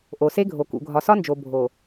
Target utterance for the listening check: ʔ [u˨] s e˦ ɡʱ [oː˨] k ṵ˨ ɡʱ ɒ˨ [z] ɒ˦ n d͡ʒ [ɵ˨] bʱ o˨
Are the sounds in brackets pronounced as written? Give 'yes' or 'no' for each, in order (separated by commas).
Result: no, no, no, no